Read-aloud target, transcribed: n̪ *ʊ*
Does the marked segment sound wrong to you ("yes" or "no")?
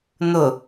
no